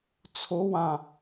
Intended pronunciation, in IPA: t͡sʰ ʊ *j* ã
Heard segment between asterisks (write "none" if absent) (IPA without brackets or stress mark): w